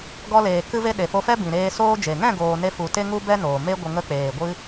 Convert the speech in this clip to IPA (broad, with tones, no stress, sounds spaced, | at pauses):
ɡ ɔ˧ l eː˨ k ɨ˧ v e˧ ɗ e˨ f o˧ f ɛ˦ b ĩ˨ ɾ eː˧ s oː˦ d͡ʒ e˨ ŋ ɛ̃˦˨ ɡ oː˧ n e˦ f u˧ t e˦ ŋ u˦ b ɛ˦ n oː˨ m e˦ ɡʷ ə˧ ŋ ə˧ k͡p eː˨ ɡʷ ɨ˧